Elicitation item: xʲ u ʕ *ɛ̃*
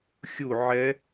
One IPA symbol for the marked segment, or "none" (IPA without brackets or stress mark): ɛ